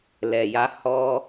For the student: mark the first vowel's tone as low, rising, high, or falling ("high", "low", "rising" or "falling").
low